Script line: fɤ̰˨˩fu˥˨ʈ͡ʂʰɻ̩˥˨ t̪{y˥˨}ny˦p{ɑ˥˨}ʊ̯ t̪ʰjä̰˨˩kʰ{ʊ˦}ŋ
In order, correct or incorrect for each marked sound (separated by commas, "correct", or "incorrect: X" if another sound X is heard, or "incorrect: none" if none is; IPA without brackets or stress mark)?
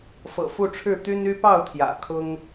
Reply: incorrect: y˦, correct, correct